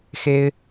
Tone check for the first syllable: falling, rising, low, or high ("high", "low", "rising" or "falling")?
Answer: high